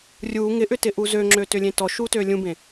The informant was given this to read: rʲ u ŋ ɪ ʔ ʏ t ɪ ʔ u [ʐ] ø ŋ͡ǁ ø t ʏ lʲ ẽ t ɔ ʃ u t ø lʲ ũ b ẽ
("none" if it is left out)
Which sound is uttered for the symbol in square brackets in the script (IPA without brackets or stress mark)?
z